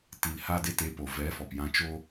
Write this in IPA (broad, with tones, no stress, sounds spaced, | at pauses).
t i˨ l h aː˧ d e˧ t e˨˦ p o˨ v ɛ˨˦ f ɔ˨ p j ã˧ t͡ʃ o˧